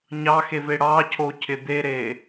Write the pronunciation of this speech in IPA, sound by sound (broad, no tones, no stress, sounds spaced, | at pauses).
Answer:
ɲ ɑ x e v e ɽ ɑ cʰ o cʰ ɪ d̪ e ɾ e